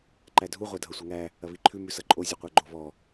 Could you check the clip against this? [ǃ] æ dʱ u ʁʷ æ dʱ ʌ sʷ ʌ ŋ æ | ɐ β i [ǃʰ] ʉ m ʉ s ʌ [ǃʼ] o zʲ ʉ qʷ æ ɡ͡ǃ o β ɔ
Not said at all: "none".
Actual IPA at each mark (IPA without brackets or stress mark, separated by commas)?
ǃ, ǃʰ, ǃʼ